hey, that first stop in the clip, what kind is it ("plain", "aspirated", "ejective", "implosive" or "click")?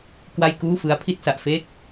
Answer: plain